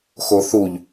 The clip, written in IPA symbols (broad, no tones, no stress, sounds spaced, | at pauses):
x o θ u ʎ